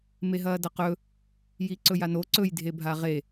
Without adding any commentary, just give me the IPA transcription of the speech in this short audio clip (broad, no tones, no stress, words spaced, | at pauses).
meɦɐːdɐqɵ | jiǀɵjano ǀɵj dʱebʱaʁe